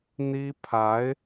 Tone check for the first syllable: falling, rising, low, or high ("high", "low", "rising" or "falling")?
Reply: high